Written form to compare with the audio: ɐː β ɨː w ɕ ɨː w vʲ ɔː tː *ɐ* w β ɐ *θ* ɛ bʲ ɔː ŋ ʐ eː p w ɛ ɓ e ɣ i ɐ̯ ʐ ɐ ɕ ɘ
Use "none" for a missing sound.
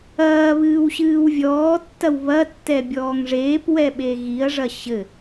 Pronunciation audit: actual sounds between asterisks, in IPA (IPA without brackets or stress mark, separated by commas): ɐ, tː